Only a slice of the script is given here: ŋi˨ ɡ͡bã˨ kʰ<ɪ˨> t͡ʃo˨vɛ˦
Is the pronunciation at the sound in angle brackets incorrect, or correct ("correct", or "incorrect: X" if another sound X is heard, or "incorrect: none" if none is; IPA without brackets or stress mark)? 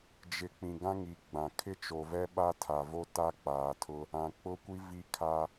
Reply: incorrect: ɪ˦